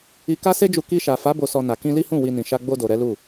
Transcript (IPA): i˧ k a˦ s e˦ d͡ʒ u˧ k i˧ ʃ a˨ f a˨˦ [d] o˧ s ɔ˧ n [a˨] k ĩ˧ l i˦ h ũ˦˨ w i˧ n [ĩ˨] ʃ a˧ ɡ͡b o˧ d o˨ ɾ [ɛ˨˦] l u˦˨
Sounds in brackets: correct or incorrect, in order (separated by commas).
incorrect, correct, correct, correct